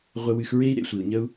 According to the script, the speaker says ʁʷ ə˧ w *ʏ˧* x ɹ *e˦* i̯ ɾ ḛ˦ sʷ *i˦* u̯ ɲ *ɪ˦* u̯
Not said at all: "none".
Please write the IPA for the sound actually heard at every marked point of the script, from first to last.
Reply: ɨ˧, e˦, i˨, ə˦

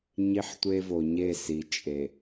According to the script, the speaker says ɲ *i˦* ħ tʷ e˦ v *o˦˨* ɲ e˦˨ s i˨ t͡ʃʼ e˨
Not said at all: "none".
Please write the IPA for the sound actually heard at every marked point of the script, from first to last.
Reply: i˦, o˨

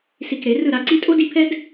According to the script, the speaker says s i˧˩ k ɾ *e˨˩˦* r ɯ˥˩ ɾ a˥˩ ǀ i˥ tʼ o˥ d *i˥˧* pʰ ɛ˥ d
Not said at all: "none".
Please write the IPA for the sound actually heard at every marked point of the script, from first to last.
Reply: e˨˩˦, i˥˧

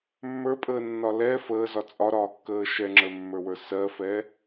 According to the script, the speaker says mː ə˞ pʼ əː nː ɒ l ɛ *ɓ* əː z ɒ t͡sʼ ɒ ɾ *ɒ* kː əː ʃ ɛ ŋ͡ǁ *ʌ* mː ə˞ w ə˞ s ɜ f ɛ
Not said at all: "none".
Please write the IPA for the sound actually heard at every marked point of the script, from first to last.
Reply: f, ɒː, ə˞

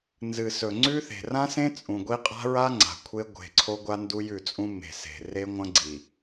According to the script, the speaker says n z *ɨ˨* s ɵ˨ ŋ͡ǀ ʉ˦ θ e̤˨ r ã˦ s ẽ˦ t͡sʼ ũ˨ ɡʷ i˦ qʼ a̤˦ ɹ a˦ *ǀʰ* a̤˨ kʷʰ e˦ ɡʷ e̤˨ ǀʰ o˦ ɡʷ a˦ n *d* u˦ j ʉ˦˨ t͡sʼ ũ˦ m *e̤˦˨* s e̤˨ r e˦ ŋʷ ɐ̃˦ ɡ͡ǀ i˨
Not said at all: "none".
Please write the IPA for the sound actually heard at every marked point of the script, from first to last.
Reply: ɨ˨, ŋ͡ǀ, d, e̤˨

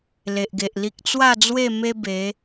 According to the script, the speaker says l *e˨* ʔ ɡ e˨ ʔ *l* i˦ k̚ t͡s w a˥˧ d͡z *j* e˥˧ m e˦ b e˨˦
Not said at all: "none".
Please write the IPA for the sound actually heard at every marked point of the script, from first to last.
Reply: e˨, l, w

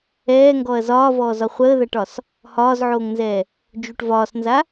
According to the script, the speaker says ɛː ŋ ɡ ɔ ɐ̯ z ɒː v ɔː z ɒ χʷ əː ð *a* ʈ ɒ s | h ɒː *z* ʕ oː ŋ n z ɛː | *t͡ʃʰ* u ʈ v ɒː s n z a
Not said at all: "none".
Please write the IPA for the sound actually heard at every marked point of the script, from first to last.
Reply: a, z, d͡ʒ

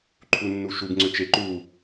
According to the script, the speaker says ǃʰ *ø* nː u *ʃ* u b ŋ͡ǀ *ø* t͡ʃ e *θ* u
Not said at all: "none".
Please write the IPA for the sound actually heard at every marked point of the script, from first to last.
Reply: u, ʃ, ø, ǃ

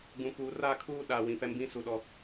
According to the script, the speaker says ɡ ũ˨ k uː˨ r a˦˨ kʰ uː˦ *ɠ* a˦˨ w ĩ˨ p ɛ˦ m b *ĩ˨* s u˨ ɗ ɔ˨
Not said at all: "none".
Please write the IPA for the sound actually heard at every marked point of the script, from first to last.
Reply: ɗ, ĩ˦

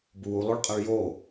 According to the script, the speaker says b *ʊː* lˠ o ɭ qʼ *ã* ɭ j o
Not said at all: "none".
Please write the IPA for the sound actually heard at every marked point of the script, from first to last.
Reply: uː, a

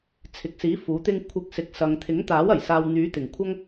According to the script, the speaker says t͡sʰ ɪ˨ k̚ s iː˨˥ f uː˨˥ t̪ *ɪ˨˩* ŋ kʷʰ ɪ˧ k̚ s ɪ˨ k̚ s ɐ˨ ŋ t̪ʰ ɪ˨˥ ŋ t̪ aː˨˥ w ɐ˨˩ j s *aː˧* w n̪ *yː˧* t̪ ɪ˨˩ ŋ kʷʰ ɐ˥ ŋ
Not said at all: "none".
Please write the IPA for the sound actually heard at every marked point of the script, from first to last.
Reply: ɪ˥, aː˨, yː˨˥

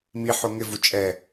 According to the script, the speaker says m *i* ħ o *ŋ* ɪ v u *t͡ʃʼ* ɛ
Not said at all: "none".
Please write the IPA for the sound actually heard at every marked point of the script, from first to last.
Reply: i, ŋ, t͡ʃʼ

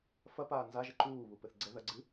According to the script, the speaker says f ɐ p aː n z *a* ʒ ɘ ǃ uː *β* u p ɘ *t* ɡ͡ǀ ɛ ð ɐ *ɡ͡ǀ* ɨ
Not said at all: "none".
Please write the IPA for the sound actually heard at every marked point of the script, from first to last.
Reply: a, β, θ, ɡ͡ǀ

